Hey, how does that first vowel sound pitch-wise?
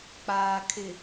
low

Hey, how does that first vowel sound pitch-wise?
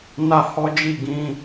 high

